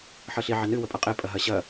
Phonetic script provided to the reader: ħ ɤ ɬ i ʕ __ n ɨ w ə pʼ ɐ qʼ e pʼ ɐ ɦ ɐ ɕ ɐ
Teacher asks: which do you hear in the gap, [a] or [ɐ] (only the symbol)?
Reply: ɐ